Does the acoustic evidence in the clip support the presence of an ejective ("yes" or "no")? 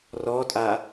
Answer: yes